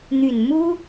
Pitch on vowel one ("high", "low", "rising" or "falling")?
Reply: low